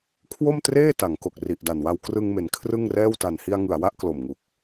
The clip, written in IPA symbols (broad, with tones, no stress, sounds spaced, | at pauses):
kʰ w o˥˩ m t r eː˥˩ t a˩˦ ŋ k o˨˩ k̚ r i˨˩ ʔ d a˨˩ n w a˧ w k r ɯ˧ ŋ m e˩˦ n kʰ r ɯ˥˩ ŋ r ɛː˥˩ w t a˨˩ n h i˧ a̯ ŋ ɯ˨˩ a̯ w a˥˩ ʔ k l o˨˩ m ŋ u˨˩ k̚